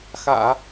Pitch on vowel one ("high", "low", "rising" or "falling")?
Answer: low